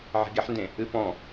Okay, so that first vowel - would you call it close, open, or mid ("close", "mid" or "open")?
mid